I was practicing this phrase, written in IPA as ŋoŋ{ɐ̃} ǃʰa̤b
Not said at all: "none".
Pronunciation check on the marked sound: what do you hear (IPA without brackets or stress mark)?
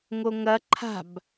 ɐ